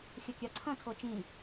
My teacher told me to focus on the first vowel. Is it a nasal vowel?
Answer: no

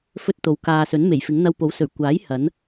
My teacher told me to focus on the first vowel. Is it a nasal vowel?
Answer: no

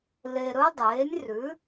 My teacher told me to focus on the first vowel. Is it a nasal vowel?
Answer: no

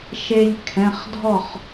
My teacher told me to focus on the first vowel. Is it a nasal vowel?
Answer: no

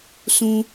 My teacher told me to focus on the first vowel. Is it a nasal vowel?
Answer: yes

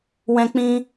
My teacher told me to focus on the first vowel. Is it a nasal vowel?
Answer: yes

